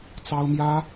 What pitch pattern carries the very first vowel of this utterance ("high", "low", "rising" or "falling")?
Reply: high